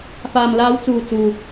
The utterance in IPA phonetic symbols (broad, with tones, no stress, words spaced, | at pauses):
faː˨mlaː˨˧wt͡suː˨ t͡suː˨